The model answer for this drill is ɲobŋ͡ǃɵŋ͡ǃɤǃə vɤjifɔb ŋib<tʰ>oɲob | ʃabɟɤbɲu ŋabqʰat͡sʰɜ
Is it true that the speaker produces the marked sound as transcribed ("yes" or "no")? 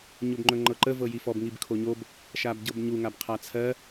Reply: no